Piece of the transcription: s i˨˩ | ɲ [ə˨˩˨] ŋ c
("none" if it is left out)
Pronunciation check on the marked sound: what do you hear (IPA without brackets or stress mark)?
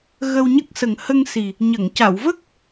ə˨˩˨